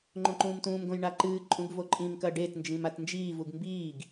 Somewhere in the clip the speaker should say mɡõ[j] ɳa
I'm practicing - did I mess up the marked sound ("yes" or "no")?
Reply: no